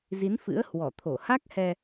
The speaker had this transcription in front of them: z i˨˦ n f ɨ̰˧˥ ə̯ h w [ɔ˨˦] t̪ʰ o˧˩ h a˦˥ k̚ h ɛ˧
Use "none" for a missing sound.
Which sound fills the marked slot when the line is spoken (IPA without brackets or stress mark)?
ɔ˧˩